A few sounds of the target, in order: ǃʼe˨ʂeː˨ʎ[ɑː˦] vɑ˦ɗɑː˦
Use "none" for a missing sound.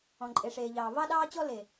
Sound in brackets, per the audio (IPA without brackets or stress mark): ɑː˨